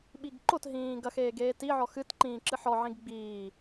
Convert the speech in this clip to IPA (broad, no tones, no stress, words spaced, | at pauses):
ɓiɡǃotɦĩː ɡɐxeːɡ eːtiʕɔ xɨtǃĩː ǁɨħɔʕĩɡ ɡ͡biː